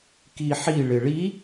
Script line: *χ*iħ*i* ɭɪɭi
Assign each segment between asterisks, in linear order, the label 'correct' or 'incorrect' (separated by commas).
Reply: incorrect, correct